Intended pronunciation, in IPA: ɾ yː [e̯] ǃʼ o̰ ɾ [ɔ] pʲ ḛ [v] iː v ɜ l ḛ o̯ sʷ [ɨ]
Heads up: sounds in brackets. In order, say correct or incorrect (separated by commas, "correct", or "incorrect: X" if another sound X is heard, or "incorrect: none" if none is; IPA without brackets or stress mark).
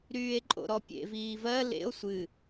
correct, correct, correct, correct